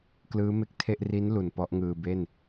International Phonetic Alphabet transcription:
k l ɯː˦˥ m e˦˥ k̚ tʰ e˥˩ ʔ r i˦˥ n l u˨˩ n p ɔ˦˥ ʔ ŋ ɯː˧ b e˥˩ n

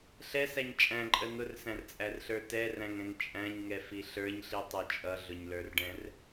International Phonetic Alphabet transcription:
ɬ ɛ s æ ɲ t͡ʃʼ æ̃ ǃʼ ə n̪ ʊ r s æ̃ r t͡sʼ æ r ɬ ə˞ t ɛ r æ̃ ŋ ɛ̃ ŋ t͡ʃʼ æ̃ ɲ ŋ ɛ f i ɬ ə˞ ɲ ɬ i tˤ ʊ t͡ʃʼ ʌ ɮ ʊ ɲ l ə˞ r ɖ ɛ̃ r

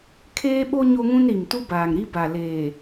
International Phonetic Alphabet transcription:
kʰ eː˦ ɓ o˦ ɲ o˦ ŋ ũ˦ n ɾ i˨ m t u˦ b aː˨ ŋ ɾ i˦ b a˨ l eː˨

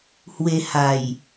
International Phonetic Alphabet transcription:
h w e˧ h a˨˩ j

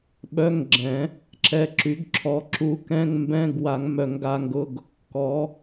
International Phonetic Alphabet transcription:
ɓ œ˧˥˧ ŋ ɡ͡ǁ ɛ̃˨˩˦ | ǁ ɛ˨˦ ǁ y˨˩˦ ɡ ǁʰ ɔ˨˦ ǁ u˨˦ k ɛ̃˧˥˧ ŋ m b ɛ̃˧˥˧ ɡ w a˨˩˦ ŋ m œ˨˩˦ ŋ ɡ a˨˦ ŋ ɡ ʊ˧˥˧ ɡ | k ɔ˨˦

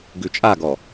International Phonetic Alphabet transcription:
ɡ ʉ t͡ʃʼ a ɡ ɔ

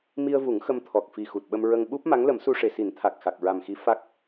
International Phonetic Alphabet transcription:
m i˧ ə̯ v u˨˩˦ ŋ x ə˧ m t̪ʰ ɔ˨˩ k̚ f i˨˩ x u˨˩ t̚ ɓ ə˧ m ɹ ə˧ ŋ ɓ u˦˥ p̚ m a˧˥ ŋ l ə˨˩˦ m s u˧ ʂ e˨˩ s i˨˩˦ n t̪ʰ a˨˩ k̚ x a˨˩ k̚ ɹ a˨˩ m x i˧˥ f a˦˥ k̚

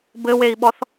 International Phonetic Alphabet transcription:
b ɘ w e i̯ ɓ ɔ θ

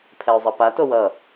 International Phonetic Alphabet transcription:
pʰ ɛ ʊ̯ zˤ ʌ p a t o w ʌ

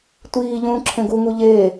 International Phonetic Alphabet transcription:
tʷ iː ʎ ũː ǁʰ ẽ ɡ u ŋ u ʎ eː

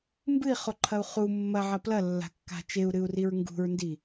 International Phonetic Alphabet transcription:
m b ɨ i̯ χ o ǃʰ ɐ u̯ χ u mː ɐ ʕ ɐ p l ɐ lː a̤ kː a̤ t͡ʃ e u̯ ɾ ɨ u̯ r i ɹ ŋ ɡ ṳ ɹ n d i

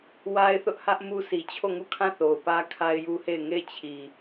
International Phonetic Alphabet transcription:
w a˦ ɪ̯ θ ʊ˦ ʔ h ä˦ ʔ m u˦ sʰ i˨ t͡ɕʰ o˦˨ ŋ u˦˨ kʰ ã˦˨ θ o˨ ʊ̯ p ä˦ kʰ a˦ ɪ̯ j u˦ h e˦˨ ɪ̯ ŋ e˦˨ ɪ̯ t͡ɕʰ i˨

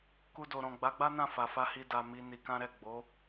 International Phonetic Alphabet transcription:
k u˧ d o˨ ɾ ɔ̃˨ ɡ͡b a˨˦ ɡ͡b a˦ n ã˦˨ f a˨ f a˧ h i˧ d a˧ m i˧ n i˧ k ã˦ ɾ ɛ˦˨ ɡ͡b o˨˦

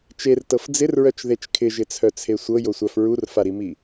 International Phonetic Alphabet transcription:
t͡ʃ e r t ɤ f d͡z ɪ r ɹ œ t͡ʃ ð e t͡ʃ kʰ ɪ ʒ ɪ t͡sʰ œ t͡sʰ e sʷ ɤ j o sʷ a f ɹ u r f a ɾ i m i

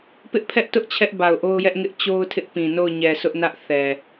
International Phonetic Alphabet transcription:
p ɪ˦ ʔ pʰ ɛ˦ ʔ t ʊ˦ ʔ t͡ɕʰ ɛ˦ ʔ b a˨ ʊ̯ ʔ o˦ ʊ̯ j ɛ˦ ʔ ŋ ɪ˦ ʔ t͡ɕ o˦ ʊ̯ tʰ ɪ˦ ʔ p ĩ˨ n o˦˨ ʊ̯ ɲ ɛ˨ s ʊ˦ ʔ n ä˦ ʔ θ ɛ˨

